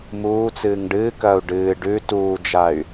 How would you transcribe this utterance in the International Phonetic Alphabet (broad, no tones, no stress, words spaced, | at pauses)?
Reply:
muː t͡sɨːŋɖɨːkɐːu̯ ɖɨː ɖʉ tuːd͡ʒay̯